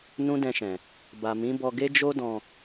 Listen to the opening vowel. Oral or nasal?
nasal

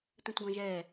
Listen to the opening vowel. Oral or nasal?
nasal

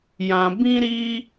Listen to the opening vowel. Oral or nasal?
nasal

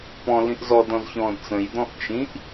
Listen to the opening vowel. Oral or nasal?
nasal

